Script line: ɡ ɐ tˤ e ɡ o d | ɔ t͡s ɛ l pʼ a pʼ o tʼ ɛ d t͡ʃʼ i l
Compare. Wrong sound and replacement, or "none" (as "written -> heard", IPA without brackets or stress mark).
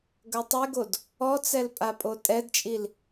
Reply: none